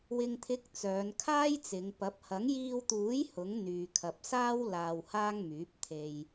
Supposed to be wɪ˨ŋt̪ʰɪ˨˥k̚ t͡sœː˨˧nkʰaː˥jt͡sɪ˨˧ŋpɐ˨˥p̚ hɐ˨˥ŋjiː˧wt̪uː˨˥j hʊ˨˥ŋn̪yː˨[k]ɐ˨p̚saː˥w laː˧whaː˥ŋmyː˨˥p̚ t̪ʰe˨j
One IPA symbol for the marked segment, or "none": kʰ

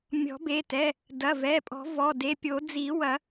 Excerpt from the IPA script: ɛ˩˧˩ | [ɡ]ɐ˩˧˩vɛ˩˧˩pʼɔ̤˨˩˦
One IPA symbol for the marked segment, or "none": d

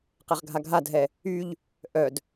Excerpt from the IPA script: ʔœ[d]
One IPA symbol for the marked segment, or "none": d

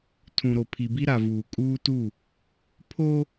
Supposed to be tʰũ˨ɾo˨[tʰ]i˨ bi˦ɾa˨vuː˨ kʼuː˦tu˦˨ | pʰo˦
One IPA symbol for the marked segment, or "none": pʰ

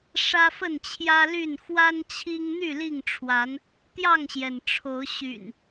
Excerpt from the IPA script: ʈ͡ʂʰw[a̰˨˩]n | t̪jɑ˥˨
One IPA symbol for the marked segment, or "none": a˨˦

